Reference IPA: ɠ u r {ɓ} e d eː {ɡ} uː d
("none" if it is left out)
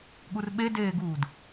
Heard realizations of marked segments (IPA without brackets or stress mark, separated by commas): ɓ, ɡ